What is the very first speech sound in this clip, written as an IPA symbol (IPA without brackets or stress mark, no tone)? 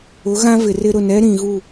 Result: ʊ